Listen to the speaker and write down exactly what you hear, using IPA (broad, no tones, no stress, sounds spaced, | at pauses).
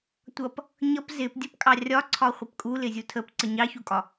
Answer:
tʷ ʌ p | ɲ ʌ p z ɪ p dʲ ə p kʼ ɑ rʲ ɒ ǀʰ ɒ χʷ ɪ p kʼ u l ɪ zʲ u tʰ ə p ǀ ə ɲ ɑ ç u kʼ ɒ